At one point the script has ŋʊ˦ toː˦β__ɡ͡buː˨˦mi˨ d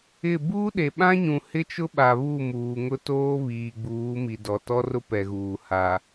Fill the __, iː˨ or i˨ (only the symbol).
iː˨